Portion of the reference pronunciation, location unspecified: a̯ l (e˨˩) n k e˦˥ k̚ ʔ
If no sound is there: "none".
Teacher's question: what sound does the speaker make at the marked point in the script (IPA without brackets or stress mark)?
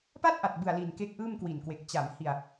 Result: i˨˩